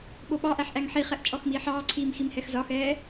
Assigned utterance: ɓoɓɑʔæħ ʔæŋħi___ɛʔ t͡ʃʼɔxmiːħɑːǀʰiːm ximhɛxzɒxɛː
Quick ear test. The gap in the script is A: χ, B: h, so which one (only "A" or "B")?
A